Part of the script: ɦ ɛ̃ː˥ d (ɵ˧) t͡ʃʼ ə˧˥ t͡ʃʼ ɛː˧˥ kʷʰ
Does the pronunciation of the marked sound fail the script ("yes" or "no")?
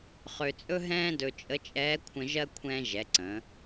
no